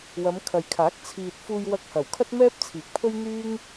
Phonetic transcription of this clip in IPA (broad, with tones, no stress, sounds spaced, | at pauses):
w ɐ˨˧ m kʰ ɐ˨ j kʰ aː˨˥ k̚ t͡sʰ iː˨ t̚ f uː˧ j w ɐ˧ k̚ h ɐ˨˩ w kʰ ɐ˥ t̚ m ɛː˥ p̚ t͡sʰ iː˨˥ k̚ pʰ ɵ˥ ɥ n̪ yː˥ ŋ